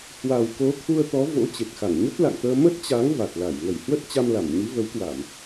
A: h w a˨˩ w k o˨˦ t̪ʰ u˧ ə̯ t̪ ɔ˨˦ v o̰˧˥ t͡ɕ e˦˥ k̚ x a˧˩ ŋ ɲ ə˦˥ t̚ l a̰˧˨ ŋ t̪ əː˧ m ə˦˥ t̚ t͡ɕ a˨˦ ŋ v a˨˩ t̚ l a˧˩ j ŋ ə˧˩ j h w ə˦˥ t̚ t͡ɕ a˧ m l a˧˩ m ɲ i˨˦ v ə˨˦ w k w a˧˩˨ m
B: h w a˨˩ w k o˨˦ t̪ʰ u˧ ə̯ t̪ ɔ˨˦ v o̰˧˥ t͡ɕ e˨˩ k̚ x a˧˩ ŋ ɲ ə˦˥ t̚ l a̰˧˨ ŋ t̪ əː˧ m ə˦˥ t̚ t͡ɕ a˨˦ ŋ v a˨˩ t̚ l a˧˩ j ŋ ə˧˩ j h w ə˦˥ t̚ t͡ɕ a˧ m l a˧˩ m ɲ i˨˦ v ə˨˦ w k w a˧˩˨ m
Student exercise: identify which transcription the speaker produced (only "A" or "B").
B